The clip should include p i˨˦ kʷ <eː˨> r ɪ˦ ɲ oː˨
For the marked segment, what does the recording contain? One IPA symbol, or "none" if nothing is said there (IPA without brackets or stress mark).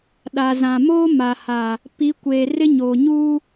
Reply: eː˨